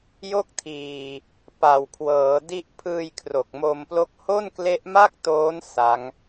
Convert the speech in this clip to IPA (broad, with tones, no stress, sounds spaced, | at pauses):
j o˥˩ k̚ tʰ iː˨˩ | p a˨˩ w kʰ w ɤː˩˦ d i˦˥ ʔ pʰ ɯː˧ j kʰ r o˨˩ k̚ m o˧ m p l o˥˩ k̚ h o˥˩ n k l e˦˥ ʔ m a˥˩ k̚ t oː˦˥ n s a˦˥ ŋ